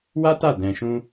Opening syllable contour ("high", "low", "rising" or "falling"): high